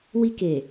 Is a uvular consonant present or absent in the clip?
absent